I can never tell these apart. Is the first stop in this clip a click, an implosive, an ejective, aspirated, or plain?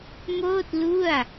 plain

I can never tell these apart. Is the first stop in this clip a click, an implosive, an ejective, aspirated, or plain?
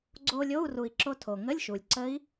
click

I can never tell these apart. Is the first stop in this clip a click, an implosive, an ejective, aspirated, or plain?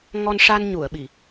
implosive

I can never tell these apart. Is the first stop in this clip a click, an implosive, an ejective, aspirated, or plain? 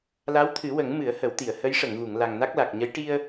aspirated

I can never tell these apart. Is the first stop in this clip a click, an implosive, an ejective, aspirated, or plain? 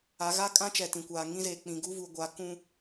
ejective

